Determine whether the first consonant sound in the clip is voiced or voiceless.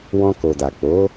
voiced